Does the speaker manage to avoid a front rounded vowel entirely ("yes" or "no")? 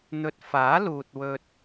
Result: yes